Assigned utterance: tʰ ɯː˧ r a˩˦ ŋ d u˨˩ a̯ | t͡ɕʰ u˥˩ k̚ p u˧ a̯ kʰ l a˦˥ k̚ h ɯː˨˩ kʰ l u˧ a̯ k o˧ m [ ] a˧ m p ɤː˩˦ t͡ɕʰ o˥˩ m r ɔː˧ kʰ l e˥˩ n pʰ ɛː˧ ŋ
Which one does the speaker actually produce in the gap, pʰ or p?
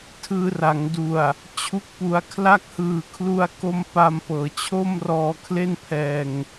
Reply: p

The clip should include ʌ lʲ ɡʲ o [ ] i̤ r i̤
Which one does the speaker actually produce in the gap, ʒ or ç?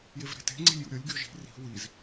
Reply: ʒ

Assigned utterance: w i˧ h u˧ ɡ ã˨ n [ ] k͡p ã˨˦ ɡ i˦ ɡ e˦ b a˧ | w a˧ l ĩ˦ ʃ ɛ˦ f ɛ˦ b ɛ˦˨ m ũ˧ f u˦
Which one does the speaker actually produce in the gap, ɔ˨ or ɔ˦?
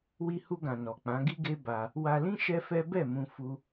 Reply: ɔ˨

